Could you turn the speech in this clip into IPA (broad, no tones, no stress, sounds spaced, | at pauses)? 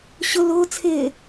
ɕ ʊ l ʊː t͡sʰ ɪː